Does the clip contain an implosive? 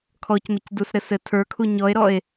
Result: no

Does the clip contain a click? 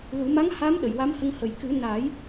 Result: no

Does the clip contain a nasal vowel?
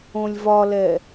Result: yes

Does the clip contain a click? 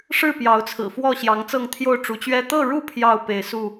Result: no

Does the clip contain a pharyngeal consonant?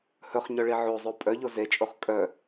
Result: yes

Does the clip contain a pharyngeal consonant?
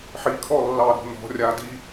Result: yes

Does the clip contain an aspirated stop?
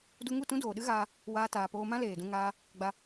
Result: no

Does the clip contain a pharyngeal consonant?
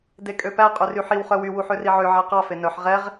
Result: yes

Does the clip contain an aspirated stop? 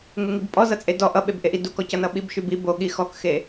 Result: no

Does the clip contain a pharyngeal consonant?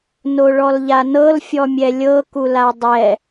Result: no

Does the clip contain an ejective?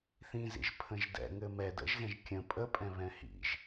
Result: yes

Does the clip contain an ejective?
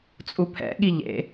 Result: yes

